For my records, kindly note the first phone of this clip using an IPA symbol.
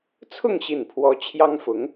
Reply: t͡sʰ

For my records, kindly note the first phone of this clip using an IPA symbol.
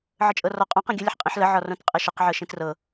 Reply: ʕ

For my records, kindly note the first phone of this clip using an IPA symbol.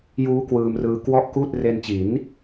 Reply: j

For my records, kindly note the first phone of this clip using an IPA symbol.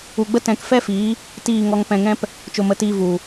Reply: u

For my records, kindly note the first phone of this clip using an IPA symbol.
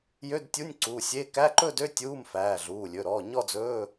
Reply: j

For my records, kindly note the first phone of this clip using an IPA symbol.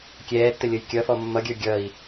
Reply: kʲ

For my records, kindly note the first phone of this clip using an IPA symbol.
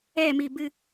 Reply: ɛ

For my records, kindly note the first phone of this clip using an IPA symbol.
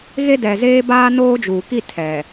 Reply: ɣ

